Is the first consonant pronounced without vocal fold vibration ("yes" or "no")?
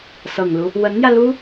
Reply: yes